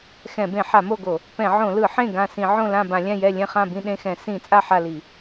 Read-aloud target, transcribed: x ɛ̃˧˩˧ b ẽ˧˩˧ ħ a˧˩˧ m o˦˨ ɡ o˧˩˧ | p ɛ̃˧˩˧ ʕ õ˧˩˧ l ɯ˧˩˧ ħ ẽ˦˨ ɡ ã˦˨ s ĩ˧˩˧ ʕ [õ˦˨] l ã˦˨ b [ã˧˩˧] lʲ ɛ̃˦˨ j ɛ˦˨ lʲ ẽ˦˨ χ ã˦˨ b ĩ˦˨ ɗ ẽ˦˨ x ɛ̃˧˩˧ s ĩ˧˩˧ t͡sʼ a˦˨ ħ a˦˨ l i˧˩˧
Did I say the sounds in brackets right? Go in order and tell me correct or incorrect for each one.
correct, correct

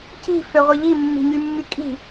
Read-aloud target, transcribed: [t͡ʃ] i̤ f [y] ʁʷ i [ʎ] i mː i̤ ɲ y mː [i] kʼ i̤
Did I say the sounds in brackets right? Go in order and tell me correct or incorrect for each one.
incorrect, incorrect, correct, incorrect

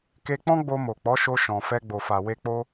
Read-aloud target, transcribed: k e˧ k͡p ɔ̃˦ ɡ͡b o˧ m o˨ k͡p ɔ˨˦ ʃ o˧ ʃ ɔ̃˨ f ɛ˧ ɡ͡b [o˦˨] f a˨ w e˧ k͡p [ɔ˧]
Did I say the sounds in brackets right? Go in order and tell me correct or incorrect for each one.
incorrect, incorrect

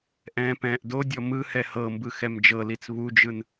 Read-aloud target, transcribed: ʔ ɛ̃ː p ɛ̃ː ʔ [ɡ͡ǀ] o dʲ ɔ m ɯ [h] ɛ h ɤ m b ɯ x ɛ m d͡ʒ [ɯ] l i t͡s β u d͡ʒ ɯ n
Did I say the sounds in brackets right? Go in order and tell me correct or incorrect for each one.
incorrect, correct, incorrect

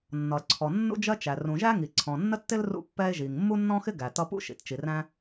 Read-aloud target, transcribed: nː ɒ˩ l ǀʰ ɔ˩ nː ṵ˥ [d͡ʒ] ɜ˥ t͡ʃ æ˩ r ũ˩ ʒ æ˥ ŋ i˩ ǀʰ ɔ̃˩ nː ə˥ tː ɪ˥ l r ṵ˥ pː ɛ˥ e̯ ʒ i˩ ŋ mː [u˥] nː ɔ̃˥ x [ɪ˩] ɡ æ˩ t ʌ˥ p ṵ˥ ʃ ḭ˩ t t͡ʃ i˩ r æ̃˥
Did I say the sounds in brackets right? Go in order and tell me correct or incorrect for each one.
correct, correct, incorrect

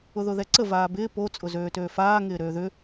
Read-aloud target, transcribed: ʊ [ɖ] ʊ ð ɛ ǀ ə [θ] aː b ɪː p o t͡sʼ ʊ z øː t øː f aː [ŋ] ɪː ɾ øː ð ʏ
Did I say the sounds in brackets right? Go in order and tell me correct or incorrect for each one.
incorrect, incorrect, correct

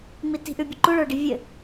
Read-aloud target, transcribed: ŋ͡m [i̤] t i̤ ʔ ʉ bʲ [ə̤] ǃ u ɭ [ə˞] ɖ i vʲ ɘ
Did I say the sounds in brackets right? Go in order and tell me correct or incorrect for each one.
incorrect, correct, correct

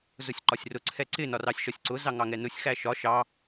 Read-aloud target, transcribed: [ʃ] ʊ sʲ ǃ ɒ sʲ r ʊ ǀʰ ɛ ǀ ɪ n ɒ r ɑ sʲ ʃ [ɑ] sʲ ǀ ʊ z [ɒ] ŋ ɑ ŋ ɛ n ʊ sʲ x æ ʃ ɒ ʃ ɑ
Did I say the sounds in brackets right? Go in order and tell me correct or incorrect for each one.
incorrect, incorrect, incorrect

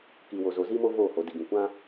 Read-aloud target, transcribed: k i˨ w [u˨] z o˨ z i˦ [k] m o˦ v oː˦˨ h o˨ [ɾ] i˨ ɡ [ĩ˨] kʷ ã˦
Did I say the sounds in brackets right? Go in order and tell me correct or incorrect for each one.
incorrect, incorrect, incorrect, correct

